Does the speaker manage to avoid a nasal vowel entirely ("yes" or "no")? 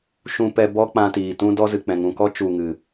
no